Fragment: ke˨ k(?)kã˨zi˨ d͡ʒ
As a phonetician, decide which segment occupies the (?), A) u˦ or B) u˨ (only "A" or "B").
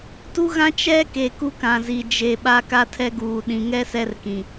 A